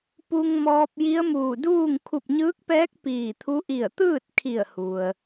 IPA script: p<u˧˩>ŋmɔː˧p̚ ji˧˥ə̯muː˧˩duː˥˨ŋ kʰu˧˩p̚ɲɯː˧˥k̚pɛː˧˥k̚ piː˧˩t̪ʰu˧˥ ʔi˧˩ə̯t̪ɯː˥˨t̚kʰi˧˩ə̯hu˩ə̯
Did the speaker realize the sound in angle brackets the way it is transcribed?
no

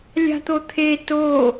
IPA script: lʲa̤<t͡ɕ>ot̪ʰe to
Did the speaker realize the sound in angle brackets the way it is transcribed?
no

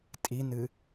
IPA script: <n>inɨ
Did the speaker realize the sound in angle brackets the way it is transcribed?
no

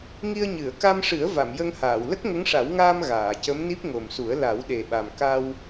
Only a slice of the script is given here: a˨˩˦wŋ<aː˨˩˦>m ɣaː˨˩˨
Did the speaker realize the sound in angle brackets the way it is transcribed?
no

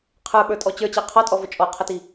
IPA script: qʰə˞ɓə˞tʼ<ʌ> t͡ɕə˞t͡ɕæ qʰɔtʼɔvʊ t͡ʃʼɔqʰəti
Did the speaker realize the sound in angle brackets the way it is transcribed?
no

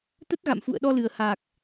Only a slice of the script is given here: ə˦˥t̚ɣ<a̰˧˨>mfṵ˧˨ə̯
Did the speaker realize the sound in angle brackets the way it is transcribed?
yes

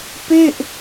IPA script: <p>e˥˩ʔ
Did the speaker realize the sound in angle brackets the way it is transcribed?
yes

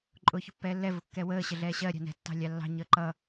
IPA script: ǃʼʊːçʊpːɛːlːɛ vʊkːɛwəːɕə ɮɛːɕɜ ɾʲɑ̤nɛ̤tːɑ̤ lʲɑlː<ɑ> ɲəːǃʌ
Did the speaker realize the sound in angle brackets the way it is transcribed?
no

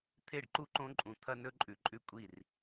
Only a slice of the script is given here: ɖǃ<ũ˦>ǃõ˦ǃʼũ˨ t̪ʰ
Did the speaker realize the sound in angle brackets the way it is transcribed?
no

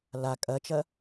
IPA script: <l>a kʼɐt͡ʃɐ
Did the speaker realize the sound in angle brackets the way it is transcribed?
yes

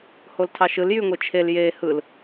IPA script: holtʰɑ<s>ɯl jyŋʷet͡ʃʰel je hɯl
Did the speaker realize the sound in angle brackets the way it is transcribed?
no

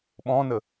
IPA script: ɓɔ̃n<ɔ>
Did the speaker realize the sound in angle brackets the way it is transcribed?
no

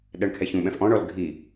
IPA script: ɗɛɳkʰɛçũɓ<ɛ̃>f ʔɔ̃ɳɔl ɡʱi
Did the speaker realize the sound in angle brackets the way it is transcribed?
yes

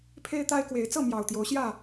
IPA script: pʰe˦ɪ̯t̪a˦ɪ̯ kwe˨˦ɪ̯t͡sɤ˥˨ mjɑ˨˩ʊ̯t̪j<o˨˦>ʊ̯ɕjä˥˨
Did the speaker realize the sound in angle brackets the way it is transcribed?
yes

